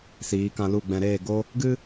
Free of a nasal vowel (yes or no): no